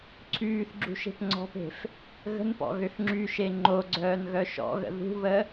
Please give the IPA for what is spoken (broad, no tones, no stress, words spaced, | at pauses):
ǀʰyːθɡ͡ǁṳ ʃe̤pŋ͡ǀɔ̤pe̤f | ɣə̤npɔ̰ ɣøxŋ͡ǁyʃe ŋ͡ǃoɡ͡ǀœːn ɣœʃɔ̰ɣə̰ ðṳβə